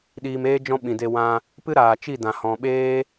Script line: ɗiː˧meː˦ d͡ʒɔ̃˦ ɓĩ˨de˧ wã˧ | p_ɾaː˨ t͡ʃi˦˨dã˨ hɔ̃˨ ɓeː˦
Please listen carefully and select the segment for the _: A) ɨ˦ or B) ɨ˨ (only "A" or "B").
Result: A